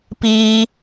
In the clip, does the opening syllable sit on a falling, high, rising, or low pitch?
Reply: high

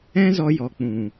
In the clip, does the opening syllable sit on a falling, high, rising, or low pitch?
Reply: high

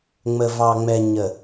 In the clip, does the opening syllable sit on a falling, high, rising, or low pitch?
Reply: low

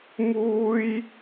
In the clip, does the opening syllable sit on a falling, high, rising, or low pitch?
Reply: high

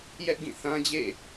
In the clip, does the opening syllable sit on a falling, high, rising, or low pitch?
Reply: high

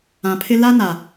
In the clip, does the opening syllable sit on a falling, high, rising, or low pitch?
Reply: low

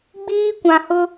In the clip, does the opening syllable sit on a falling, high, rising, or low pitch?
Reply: high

